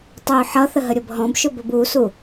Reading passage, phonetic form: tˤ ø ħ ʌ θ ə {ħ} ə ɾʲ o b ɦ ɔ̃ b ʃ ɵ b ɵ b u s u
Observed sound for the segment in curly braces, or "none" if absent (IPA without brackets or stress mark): ɦ